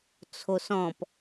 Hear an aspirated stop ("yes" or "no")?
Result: yes